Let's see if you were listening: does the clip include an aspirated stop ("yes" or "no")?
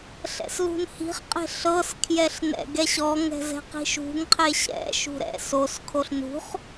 yes